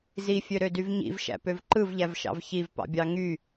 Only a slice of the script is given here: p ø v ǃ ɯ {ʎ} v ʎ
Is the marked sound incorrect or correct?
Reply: incorrect